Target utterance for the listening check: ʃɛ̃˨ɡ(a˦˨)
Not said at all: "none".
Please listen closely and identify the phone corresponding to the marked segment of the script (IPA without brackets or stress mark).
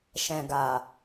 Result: a˨